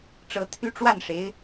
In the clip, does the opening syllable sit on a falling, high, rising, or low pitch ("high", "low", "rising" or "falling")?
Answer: rising